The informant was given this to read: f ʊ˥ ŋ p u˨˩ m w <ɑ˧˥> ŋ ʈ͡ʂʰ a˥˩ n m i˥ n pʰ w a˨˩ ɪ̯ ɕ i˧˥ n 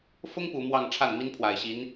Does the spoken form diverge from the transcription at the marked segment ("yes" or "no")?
yes